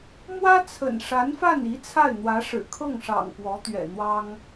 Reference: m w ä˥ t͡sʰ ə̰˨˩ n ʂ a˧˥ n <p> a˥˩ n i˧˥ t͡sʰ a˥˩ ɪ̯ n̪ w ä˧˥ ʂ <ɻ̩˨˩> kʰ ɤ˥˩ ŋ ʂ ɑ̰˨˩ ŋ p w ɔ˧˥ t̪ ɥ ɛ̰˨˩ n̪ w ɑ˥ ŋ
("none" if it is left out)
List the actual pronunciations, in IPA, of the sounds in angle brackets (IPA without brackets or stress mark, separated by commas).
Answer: f, ɻ̩˨˩